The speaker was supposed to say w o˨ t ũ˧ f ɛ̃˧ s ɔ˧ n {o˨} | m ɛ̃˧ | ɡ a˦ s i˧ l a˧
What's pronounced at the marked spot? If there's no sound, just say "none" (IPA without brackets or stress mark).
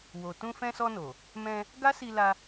o˨